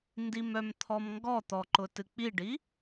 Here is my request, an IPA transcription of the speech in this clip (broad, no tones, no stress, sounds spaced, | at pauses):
n d i m œ m t̪ʰ ɔ m ŋ ɡ ɔ t̪ ɔ ǃ ʊ t ɨ k͡p i ɖ i